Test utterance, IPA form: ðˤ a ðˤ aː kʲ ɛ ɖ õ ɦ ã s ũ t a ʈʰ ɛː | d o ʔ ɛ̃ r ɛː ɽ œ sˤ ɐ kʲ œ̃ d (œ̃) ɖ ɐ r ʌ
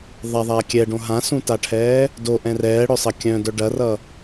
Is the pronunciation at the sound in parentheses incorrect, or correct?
incorrect